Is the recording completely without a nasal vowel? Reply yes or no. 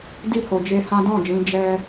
no